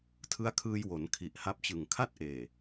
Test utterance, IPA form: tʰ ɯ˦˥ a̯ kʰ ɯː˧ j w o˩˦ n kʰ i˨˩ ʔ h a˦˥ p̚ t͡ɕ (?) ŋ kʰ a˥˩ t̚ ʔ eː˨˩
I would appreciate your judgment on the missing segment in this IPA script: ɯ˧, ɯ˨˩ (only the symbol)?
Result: ɯ˨˩